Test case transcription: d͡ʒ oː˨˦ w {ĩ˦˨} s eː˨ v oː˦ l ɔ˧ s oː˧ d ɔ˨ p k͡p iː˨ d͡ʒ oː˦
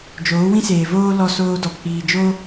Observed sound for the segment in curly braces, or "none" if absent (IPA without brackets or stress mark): ĩ˦